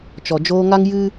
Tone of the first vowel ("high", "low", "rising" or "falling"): low